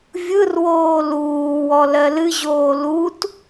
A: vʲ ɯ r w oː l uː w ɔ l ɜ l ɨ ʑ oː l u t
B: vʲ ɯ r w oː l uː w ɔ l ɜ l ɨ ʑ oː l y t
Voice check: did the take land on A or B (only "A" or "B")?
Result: A